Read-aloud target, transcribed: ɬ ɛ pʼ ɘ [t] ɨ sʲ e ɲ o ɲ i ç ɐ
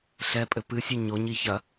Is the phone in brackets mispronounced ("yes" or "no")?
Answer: yes